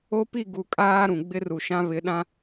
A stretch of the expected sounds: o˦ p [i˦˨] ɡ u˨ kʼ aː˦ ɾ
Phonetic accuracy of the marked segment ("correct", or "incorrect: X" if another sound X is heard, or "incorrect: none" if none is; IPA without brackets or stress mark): correct